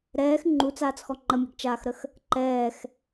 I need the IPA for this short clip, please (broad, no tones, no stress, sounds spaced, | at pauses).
ɾ ɛː x ŋ͡ǃ u t͡s aː t͡s x ɔ ŋ͡ǃ ə mʲ ɛ̤ ɡ t͡ʃ aː x ɾ ə x | ǃ ɛː x